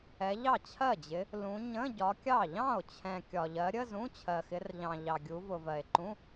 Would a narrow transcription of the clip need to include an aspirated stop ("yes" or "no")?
yes